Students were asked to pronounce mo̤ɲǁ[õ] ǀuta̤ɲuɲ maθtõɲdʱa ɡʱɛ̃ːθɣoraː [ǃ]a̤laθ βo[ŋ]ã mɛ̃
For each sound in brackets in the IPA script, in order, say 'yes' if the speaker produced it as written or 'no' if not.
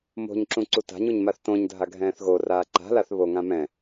no, yes, yes

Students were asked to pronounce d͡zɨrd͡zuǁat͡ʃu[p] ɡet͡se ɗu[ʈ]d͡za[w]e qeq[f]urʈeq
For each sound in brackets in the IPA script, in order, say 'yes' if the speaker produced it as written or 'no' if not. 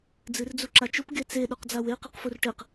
yes, no, yes, yes

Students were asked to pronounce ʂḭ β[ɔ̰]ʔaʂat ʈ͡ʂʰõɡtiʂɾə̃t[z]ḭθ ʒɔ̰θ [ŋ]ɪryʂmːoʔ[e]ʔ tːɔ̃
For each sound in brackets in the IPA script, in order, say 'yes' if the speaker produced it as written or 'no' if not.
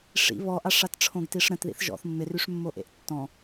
no, no, no, no

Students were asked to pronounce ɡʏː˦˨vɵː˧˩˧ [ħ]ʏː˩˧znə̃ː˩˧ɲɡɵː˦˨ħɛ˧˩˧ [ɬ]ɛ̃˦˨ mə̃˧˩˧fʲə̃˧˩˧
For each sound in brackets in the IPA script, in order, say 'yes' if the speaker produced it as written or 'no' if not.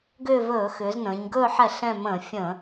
no, yes

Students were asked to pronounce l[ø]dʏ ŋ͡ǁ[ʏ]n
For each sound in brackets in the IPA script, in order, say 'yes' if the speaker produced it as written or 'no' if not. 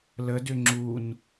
no, no

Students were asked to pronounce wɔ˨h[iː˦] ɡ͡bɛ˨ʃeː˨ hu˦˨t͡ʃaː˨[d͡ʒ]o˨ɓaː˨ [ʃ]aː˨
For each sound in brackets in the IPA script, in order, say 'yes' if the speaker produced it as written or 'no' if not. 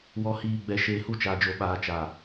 no, yes, no

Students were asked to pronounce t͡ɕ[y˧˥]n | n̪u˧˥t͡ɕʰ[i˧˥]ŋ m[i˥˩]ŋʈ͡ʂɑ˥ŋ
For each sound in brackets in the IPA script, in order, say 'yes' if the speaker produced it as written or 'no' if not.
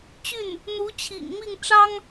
no, no, yes

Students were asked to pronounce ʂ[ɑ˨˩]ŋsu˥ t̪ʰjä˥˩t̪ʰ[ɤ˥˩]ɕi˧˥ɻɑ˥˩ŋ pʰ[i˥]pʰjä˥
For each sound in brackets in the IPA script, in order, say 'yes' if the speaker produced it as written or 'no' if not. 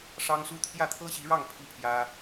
no, no, yes

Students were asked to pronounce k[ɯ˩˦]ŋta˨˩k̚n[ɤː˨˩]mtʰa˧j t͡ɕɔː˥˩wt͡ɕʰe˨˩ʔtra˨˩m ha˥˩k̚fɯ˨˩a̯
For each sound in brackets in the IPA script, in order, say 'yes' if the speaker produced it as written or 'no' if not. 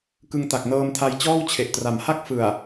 no, no

